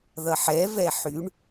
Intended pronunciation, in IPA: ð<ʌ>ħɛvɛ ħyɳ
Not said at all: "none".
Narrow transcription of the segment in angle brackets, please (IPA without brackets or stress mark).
ʌ